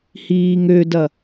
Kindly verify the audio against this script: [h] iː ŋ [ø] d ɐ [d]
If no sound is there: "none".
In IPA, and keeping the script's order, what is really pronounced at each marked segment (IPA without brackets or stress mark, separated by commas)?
h, ø, none